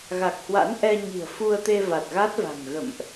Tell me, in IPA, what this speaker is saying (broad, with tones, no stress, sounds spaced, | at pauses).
ɣ a˨˩ k̚ h w a̰˧˥ n ʔ ɛ˧ ɲ i̤˨˩ ə̯ f u˧ ə̯ t̪ e˧ v a˨˩ t̚ ɣ a˦˥ t̚ v a̤˨˩ ŋ ɣ ə̰˧˨ m ʔ